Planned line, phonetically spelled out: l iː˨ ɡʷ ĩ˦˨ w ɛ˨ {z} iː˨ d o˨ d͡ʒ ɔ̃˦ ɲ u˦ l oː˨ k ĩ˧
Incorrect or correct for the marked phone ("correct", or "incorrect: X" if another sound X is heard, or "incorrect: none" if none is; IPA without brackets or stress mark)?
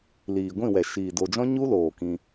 incorrect: ʃ